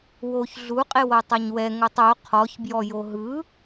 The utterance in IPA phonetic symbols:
w o ç ɮ u qʼ e w ɤ tˤ a ɲ w ɛ ŋ o tˤ o qʰ ɔ ç b j ɔ j o ɦ ɯ

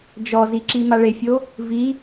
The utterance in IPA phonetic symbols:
d͡ʒ ɔ z i ǁ i m a ɭ e fʲ o | v i

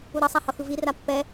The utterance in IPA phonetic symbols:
u ɾ ʌ sˤ a h ʌ x ɯ v i r a pː ɛ

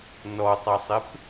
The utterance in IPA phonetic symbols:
n ɔ tˤ ɐ sˤ ɪ p

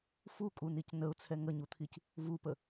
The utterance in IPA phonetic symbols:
f u kʼ u n i c n ə ʊ̯ t͡sʰ ɛ ŋ ə ɲ u t̪ʰ i c | v u p ə

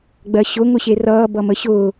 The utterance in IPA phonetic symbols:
ɡ͡b ɜ ɕ ʊ ŋ ʊ ɕ e r ʌː b ʌ m ə ɕ ʊː

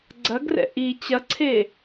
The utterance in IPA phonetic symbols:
ɡ͡ǀ ɐ ɡ r ɛ̰ ʔ i t͡ɕ ɐ ǀʰ e

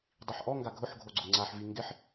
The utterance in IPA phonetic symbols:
dˤ i ħ ʔ ɔ ŋ ɡ a ɡʱ ʊ ħ ɡʱ o ɡ͡ǀ ʊ ŋ͡ǀ a ħ v i ŋ ɡ ɪ ħ

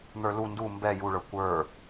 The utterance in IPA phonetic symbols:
n̪ ə˞ l u n d u m b ɛ j u ɭ ə˞ kʷ ə˞

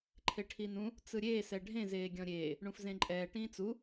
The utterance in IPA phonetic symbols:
ǃʰ e ʈʰ i n ũ | t͡s ɯ ɾʲ eː s ɛ ɖʱ ẽ z eː ɡʲ ɔ̃ ɾʲ eː | ɳ ũ f z ẽ ǃʼ ɛː ʈ ĩː t͡s u

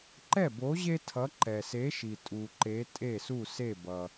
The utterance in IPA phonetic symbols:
ǃ ɛ˥˩ b o˨˥ ʑ e˥ tʰ ʌ˨˥ ǃ ɛ˩ s e˨˥ ʃ i˩ tʼ u˩ ǃ e˨˥ tʼ e˥˩ s u˥˩ s e˥˩ b ʌ˩

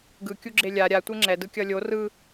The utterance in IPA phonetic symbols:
ɡ ɯ kʲ u ɡ͡ǁ e lʲ a ɾʲ a tʷ e ŋ͡ǁ ɛ d ɯ kʲ ʌ lʲ o r ɯ

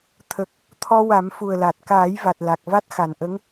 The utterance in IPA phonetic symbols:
t̪ʰ ə˨˩ k̚ | t̪ʰ ɔ˧ w a˨˩˦ m f u˨˩ ə̯ l a˨˩ t̚ k aː˨˩˦ j v a˨˩ t̚ l a˨˩ k̚ v a˦˥ t̚ x a˨˩ n ʔ ə˧˥ ŋ

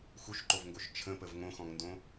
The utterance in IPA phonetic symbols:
x u ʃ ǃ o v ŋ ɡ o ʃ t͡ʃʰ ə̃ p ə v ŋ õ x ɔ̃ ŋ n d õ

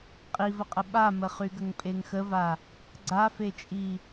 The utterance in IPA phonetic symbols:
qʼ i v ə qʼ ə ɓ a m ə χ y ɡ ə ŋ pʼ e ŋ x ə v a | ɡ͡ǀ a f e t͡ʃʼ i

